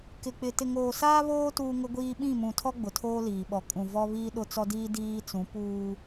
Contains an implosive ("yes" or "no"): yes